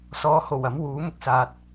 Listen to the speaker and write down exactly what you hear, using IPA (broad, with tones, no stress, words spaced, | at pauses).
sɔː˨˧ ho˨˩w ɐ˨˥mwuː˨˥ mʊ˧k̚saː˨t̚